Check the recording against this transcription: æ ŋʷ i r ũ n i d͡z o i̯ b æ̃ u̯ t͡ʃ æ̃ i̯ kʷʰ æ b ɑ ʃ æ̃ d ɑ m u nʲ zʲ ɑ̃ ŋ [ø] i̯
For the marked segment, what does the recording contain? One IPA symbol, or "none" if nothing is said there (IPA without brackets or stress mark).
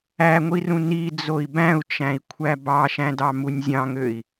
ø